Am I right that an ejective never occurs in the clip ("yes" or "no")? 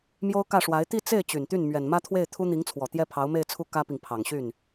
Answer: yes